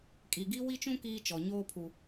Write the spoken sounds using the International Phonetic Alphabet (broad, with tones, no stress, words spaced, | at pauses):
kʼi˨ɡi˦ wi˦t͡ʃũ˦ kiː˦t͡ʃɔ˨ɲoː˦pʰu˨